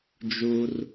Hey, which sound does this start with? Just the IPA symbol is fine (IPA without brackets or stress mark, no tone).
d͡ʒ